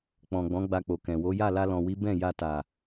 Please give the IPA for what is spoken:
k͡pɔ̃˨ ɡ͡bɔ̃˨˦ɡ͡ba˧k͡po˨ kɛ̃˨wo˨˦ ja˦˨la˧lɔ̃˨wi˨˦ bɛ̃˦˨ ja˧ta˨

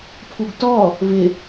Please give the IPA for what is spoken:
pʰuɡtɔ | vɪ

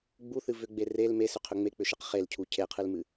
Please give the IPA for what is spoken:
ɡ͡buθɨ vʏɡ͡be rel mesʏqʰʏ ŋ͡mek͡pʏʃeq χelcʰu cʰeqʰɨlmɨ

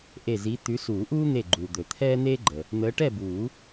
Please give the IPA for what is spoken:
ʔe˧˩zi˨˦t̪ʉ˨˦ suː˨˩˦ʔuː˦n̪e˧˩ɡ͡ǃuː˩ d̪ɵ˩t̪ʰɛː˦n̪eː˦ɡ͡ǃə˩ | n̪əː˨˦ʈɛ˥˨buː˨˩˦

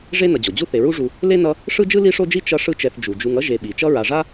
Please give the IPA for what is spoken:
ʐe˥ nʌ˨d͡ʑo˩ d͡ʑu˥θe˨ ɹu˦ʐu˨ | le˥nʌ˦ | ʂɯ˥d͡ʒɯ˥ li˥ʂo˥d͡ʒi˥ t͡ʃʌ˦ ʂɯ˦t͡ʃɛ˨θ d͡ʒu˩ d͡ʒu˨ŋʌ˥ ʒe˨ɓi˩ t͡ʃʌ˦ɹa˨ʐa˥

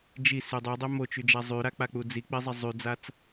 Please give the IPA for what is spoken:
d͡ʒi sydˤudˤɛ mot͡ʃyd͡ʒa zˤyɾak͡pa k͡pud͡zik͡pɪzˤɛ zˤyd͡zat͡s

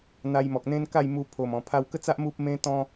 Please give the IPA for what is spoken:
n̪a˧jmɔ˨k̚n̪ẽ˦nka˥˧j mu˧pʰo˨˩mɔ̃˨˩ pʰa˧wkə˥˧t͡sa˦ʔ mu˦p̚mẽ˦t̪ɔ̃˦

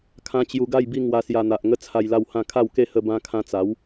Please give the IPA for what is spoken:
kʰã˦ t͡ɕju˧ɡa˥˧jbi˥˧ ŋwa˧sja˧n̪a˨ʔ ŋə˦ t͡sʰa˧jla˥˧whã˥˧ kʰa˥˧wke˥˧hə˧ bã˧kʰã˧t͡sa˨˦w

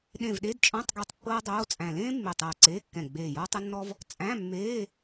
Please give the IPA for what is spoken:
ɗẽ˧˩vɗe˧˥˧dt͡ʃʼɔ̃˧˥˧tˤɡɛ˧˩tˤ pːɤː˥dˤoː˧˥˧t͡sʼæ̃˧˩ lẽː˥ mːe˧˩tˤɤː˧˩ǀeː˧˥˧kːɛ̃˧˩ ɡ͡beː˧˩jɔ˥tˤə˥nːɔ˥v | t͡sʼæ̃˧˥˧mːeː˧˥˧

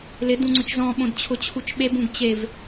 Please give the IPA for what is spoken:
lɪd ũŋ͡ǀʊt͡ʃzɔ̃ ɓõdt͡ɕʰʊt͡ɕʰut͡ʃɓeb ũɡt͡ɕev

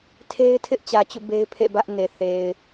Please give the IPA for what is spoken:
tʰe˦ɪ̯tʰɪ˦ʔt͡ɕä˨ t͡ɕṵ˦˨be˦ɪ̯pʰḛ˦˨ bä˦ʔne˨θe˨ɪ̯

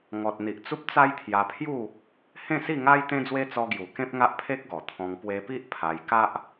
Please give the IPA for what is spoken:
ŋɔ˨t̚ n̪i˨ʔt͡su˦p̚ t͡sa˦jt̪ʰja˧pʰju˥˧ | hẽ˥˧ si˥˧ŋa˦j t̪ẽ˦d͡zwe˦ t͡sɔ˧ɡju˨˩ kẽ˦p̚ŋa˦ʔpʰe˦k̚ɡɔ˨˩ t̪ʰɔ̃˧ŋ pwe˧pi˦ʔ pʰa˧j ka˦ʔ

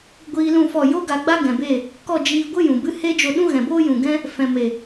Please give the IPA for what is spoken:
ɡʷiː˧lũ˦˨fɔ˦˨ jo˦ ɡa˧ɡ͡ba˦ɡɛ̃˨be˦˨ | kɔ˦˨d͡ʒiː˧ɡʷɨ˦ jũ˨bɨ˦ he˦d͡ʒo˧ɗũ˦ ɣɛ̃˨boː˦jũ˨ɡɛ̃˦ | fɛ̃˨me˨

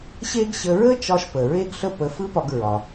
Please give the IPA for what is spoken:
ɕe˥ɡɕə˧ ɹə˥t͡ʃɒ˧ʃpə˩ ɹe˥ɡɬə˥pə˧ fɯ˥pɒ˧ɡ ɹɒ˩

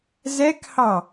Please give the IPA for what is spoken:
zɛkhɑ

